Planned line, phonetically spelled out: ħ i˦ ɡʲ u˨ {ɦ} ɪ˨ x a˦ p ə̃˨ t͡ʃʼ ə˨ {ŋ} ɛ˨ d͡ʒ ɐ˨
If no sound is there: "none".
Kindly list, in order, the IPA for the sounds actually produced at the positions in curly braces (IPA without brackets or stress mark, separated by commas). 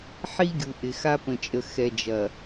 ʔ, x